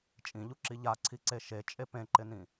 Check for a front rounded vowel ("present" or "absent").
absent